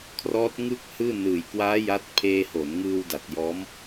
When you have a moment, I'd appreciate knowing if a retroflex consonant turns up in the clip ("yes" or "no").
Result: no